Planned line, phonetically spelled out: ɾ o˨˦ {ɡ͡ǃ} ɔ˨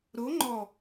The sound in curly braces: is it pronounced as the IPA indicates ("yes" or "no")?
no